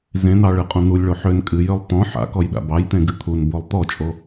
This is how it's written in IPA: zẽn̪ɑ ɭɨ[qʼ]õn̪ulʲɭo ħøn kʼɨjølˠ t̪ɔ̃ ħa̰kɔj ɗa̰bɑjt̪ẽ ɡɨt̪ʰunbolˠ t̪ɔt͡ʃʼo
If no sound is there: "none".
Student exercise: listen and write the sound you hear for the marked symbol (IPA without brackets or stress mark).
qʼ